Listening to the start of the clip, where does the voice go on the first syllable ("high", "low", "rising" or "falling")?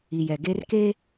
low